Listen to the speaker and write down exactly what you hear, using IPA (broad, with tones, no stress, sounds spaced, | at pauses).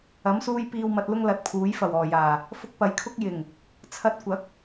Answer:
ɐ˨˥ m s uː˧ j p iː˨ w m ɐ˨ t̚ l ʊ˧ ŋ l ɐ˨˥ t̚ pʰ uː˨˥ j f ɐ˨˩ w ɔː˨˩ j aː˨˩ | f ʊ˧ k̚ p ɐ˨˥ j kʰ ʊ˥ k̚ j ɪ˨˩ ŋ | t͡sʰ ɐ˧ t̚ kʷ ɐ˨˥ k̚